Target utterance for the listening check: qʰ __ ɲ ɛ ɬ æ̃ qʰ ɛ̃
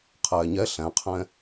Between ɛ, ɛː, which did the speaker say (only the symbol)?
ɛː